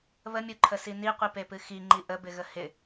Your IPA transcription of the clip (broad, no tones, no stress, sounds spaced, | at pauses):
β ə mʲ u ǃʰ ə s i n i qʷ i p e p ɨ x i ŋ͡ǃ i ʔ ə b ɪ ɣ ə h ɪ